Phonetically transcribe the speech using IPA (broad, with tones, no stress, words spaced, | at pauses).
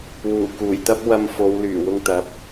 wuː˨˩kuː˨˩jt̪ɐ˥p̚ wɐ˧mfo˨˧wlyː˨˩ wʊ˧ŋt̪ɐ˨˥p̚